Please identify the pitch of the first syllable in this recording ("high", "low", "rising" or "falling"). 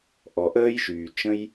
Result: low